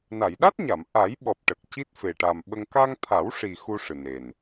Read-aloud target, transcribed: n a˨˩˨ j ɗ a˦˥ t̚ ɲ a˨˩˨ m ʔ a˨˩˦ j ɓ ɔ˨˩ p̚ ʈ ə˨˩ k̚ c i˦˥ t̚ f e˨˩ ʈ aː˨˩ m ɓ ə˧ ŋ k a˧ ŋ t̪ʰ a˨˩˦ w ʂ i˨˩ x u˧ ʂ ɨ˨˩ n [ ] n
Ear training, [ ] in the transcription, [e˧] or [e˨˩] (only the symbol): e˨˩